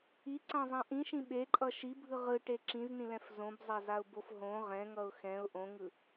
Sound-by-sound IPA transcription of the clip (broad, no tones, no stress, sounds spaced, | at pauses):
i ǀ ã zˤ ã ʔ ĩ ʃ ĩ ɓ e ǃʼ ʌ ʃ i bʱ ɯ ʁ ɯ ʈ e ǁ ĩ z n ĩ l ɛ̃ f z õ b zˤ a z a ʊ̯ b o f ɦ õ ʁ ɛ̃ ŋ ʌ ʊ̯ x ɛ̃ ʊ̯ ʔ õ ŋ ɯ